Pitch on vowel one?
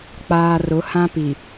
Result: low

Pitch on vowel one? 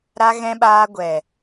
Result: high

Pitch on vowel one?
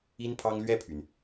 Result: high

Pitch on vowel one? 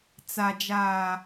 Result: low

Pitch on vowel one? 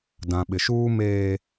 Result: low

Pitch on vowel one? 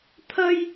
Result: high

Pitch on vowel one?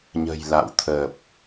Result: low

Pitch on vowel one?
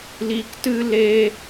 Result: high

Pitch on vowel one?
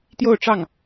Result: falling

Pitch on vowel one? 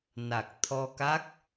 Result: low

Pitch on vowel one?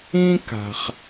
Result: high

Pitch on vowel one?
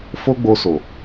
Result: high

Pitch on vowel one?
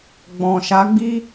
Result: low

